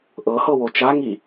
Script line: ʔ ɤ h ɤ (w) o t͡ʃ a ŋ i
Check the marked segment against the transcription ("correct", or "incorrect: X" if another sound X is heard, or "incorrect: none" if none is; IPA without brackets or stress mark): correct